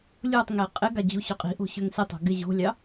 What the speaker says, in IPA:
lʲ o tˤ ŋ e qʼ ɪ ɡ a d͡ʑ u ɕ ʏ qʼ i̤ ʔ o̤ ɕ ʏ ŋ s ɪ tˤ o̤ ɡ ɪ ʑ o̤ lʲ ɑ

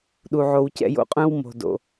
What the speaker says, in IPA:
ɗ u˨ ʕ o˨ w c ɛ̰˧ j o̰˧ qʼ œ̃˦ w m o̤˨ d o̰˨

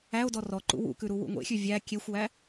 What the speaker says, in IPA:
æ o̯ d ɔ r ɔ ǃ ṵ w ṵ k ʉ ɾ u w ṵ ŋʷ ḛ xʲ ʉ vʲ æ kʲ e xʷ w æ

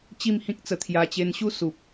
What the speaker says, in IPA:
t͡ɕ i˥˧ m h ĩ˦ k̚ t͡s ə˧ t̪ʰ j a˧ t͡ɕ e˧ n ɕ u˦ s u˨ p̚

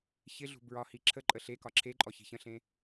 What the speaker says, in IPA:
ç ɪ ɮ ṳ b ɹ ɒ h i ǁʰ ə ǃʼ ə ɬ e k ɒ ǁʰ e ǃʼ ɔ ç i̤ ç ə̃ ɬ ẽ

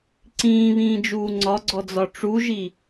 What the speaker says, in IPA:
ǀ ĩː β ĩː d͡ʒ uː ŋ͡ǀ ɒ ɡ͡ǀ ɔ d͡z ɒ ʈ͡ʂ u ʒ i

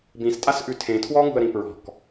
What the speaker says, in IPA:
b ĩ s tʼ a s ʔ ʉ tʰ ẽ tʰ w ɔ ŋ ṳ ə̯ ɾ ĩ p ɹ ɔ̤ k

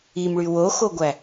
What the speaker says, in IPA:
i m ɭ y w o x o ɡʷ æ

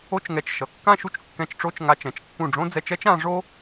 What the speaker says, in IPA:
o˥˧ t͡ʃ ŋ ɛ˧˩ t͡ʃ ʃ ʌ˩˧ kː ã˥˧ ʃ u˥ t͡ʃ kː ɛ̃˧ t͡ʃ ʈ͡ʂ o˥˧ t͡ʃ ŋ a˧ t͡ʃ ɛ̃˩˧ t͡ʃ kː ũ˧˩ ɖ͡ʐ õ˥ d͡z ɛ˧ t͡ʃ ɛ˥ t͡ʃ ã˩˧ ʐ o˥

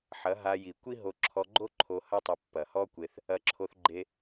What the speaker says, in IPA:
ħ ɐ˨˦ ɦ a˧ j i˨ kʷ i˦ ɦ o˧ ǁʰ ɔ˧ ɡ͡ǃ o˦ ǃʰ o˧ h ɐ˦ tˤ ɐ˧ pː ɐ˨ h ɔ˦ kʷ e˧ θ | ɐ˧ ǁʰ o˧ θ ɡ͡ǃ e˧

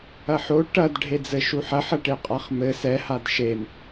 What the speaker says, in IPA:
ɐ ħ o ʈ ɐ d ɖʱ e d͡z ɘ ʃ u ħ ɐ ħ ɐ ʈ e qʼ a χ m ɘ s ɛ h a d ʃ e m

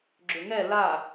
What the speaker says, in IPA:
ɡ͡ǁ ʏ ŋ ɛ l a

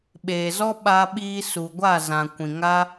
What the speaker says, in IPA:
ɓ eː˨ z ɔ˦ ɓ a˧ ɓ iː˧ s u˨ ɡʷ a˦˨ z ã˨ kʷ ĩ˨ ŋ a˦

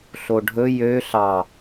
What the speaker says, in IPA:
ɬ o ɖʱ ɵ j ø ɬ ɑ

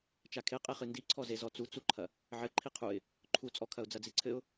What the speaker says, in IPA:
t͡ʃ a kʰ e qʼ e χ ɨ n d i ǀʰ ɔ z e z ɔ t͡s u t͡s u ǃʰ ɐ | ʕ ɘ ǃʰ i qʰ u ɪ̯ | ǃʰ u t͡sʼ ɔ kʰ ɐ ʊ̯ d͡z ɐ d͡z i ǀʰ ɘ ʊ̯

